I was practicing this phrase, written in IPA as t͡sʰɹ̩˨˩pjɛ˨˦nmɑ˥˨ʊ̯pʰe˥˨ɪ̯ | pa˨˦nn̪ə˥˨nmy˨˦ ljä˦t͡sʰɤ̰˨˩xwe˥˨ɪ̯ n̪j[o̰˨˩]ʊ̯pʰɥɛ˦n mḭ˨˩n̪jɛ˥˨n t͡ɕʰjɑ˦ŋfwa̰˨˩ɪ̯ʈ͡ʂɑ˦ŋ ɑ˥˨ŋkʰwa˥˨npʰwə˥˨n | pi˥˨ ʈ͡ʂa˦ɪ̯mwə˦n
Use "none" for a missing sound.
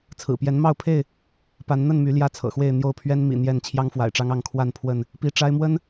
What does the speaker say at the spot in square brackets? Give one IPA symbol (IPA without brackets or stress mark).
o˥˨